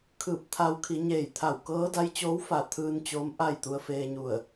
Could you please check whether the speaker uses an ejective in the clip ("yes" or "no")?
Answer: no